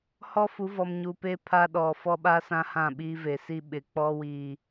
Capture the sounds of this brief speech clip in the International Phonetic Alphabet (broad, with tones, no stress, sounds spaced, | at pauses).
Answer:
h ɔ˦ f u˨˦ v ɔ˨ m ɲ u˨ p e˦ pʰ a˦ ɗ ɔ˨ f ɔ˦ ɓ a˦ s ã˦ h ã˦˨ ɓ iː˦ v e˨ s i˦ ɓ ɪ˨ k͡p ɔ˦ w iː˨